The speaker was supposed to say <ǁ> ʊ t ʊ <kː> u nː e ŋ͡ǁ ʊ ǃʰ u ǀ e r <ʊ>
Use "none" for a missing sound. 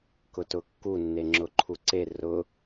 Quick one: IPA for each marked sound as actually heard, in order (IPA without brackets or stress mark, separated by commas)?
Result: k, kː, ʊ